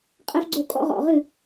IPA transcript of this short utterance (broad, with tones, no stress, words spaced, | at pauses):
qʼɛ˦fɡ͡ǀo˦˨kʼɔ̰˦ ʁɔ̰˨ʁɨ˦˨